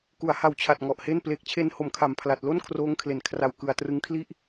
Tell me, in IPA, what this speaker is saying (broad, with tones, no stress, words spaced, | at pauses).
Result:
ku˩˦a̯ha˨˩wt͡ɕʰa˨˩t̚ ŋɔ˨˩ʔhe˥˩n pleː˨˩k̚t͡ɕʰe˧n ho˨˩m kʰa˨˩mpʰla˨˩t̚lo˥˩n kʰroː˦˥ŋkʰle˨˩n kʰra˨˩w kɯ˨˩a̯trɯ˦˥ŋkʰli˥˩ʔ